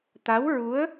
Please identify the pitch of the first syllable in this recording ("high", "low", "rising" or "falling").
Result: rising